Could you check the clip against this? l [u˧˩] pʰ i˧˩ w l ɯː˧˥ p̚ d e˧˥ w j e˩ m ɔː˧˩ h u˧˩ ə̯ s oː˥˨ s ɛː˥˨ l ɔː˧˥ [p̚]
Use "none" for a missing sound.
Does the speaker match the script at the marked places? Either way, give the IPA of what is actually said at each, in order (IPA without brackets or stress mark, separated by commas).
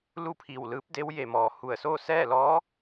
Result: u˥˨, none